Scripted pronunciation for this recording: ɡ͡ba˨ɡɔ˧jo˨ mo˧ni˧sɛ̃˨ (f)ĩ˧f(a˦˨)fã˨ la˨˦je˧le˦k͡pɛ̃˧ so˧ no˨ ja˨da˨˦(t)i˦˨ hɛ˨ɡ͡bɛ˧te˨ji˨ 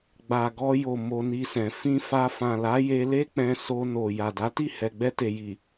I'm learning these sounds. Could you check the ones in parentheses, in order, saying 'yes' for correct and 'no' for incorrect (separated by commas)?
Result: yes, no, yes